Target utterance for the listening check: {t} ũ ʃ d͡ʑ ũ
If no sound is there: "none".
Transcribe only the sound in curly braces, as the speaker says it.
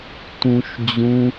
t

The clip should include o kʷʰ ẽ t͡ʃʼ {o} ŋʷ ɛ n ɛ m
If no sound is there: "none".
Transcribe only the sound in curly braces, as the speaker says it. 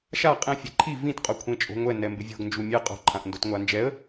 o̤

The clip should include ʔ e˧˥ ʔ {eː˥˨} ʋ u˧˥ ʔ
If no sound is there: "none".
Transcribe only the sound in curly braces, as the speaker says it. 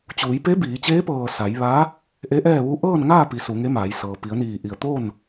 ɛː˥˨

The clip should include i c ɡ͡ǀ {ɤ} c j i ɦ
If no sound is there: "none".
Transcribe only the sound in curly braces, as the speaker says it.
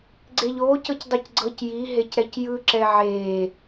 ɤ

